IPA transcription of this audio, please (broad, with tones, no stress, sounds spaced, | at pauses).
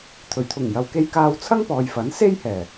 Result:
t̪ʰ ɵ˨˩ ɥ t̪ʰ ʊ˨˩ ŋ j ɐ˨ w k e˧ j k aː˧ w t͡sʰ ɐ˥ ŋ p ɔː˨ j f ɐ˨˥ n s e˥ j h ɛː˨˩